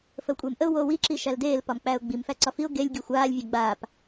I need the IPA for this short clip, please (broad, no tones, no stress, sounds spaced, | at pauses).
f ə w kʷʼ eː m ʔ ə ʊ̯ w oː w i ǁ i ʃ æ l d eː l p ɒ m k͡p æ ʊ̯ ɡ͡b i m f æ ǀ ɒ f i ʊ̯ ɡ e lʲ ɡʲ ə˞ xʷ aː lʲ vʲ æ ɡ͡b aː p